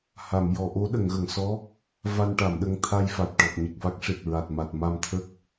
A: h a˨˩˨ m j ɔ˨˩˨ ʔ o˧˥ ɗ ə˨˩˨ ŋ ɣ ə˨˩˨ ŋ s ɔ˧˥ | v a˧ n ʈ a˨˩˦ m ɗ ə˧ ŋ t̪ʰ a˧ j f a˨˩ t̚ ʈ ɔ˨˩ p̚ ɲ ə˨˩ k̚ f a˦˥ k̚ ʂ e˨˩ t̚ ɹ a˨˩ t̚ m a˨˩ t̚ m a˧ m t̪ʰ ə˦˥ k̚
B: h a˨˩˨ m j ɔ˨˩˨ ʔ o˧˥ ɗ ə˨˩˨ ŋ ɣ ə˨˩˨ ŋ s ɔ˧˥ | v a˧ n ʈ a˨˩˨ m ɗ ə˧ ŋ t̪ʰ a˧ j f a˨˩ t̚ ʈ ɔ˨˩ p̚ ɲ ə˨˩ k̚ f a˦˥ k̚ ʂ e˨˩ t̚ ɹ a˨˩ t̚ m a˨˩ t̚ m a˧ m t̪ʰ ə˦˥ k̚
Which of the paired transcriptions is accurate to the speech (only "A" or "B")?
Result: B